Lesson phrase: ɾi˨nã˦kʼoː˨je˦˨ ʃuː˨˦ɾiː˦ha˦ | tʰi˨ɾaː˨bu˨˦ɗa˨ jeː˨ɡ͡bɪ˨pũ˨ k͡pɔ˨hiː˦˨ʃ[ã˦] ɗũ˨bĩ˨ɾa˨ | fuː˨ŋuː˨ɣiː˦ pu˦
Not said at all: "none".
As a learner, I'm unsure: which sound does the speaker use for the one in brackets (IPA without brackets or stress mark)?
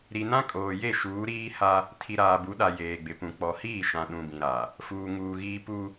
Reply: ã˨